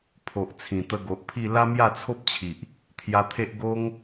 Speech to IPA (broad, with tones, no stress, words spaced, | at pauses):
pʰo˨ʔt͡sʰĩ˨˩t̪ə˧ ɡo˨ʔpʰi˥˧ la˦mja˥˧t͡sʰo˦p̚t͡ɕʰi˨ʔ | t̪ʰja˧t̪ʰe˦ʔ ɡo˦ŋ